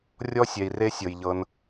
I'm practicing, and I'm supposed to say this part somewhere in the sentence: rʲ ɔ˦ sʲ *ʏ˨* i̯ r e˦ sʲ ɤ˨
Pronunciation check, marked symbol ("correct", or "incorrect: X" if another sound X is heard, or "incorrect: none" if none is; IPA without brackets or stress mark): incorrect: ɛ˨